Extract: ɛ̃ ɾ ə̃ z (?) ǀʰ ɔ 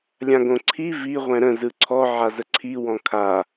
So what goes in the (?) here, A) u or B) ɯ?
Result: B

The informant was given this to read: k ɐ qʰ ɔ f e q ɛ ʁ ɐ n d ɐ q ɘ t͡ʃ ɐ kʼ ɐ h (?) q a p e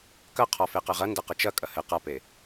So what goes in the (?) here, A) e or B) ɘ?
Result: B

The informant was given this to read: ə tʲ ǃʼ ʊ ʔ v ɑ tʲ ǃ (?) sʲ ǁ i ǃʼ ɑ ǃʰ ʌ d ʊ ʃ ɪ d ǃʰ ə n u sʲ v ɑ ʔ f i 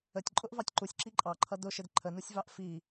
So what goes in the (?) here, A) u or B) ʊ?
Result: A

